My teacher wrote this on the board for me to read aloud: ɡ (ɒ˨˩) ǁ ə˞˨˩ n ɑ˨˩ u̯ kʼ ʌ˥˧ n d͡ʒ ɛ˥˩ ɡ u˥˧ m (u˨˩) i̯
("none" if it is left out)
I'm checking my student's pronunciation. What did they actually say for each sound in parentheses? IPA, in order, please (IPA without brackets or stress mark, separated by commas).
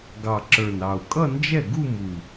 ɑ˨˩, u˨˩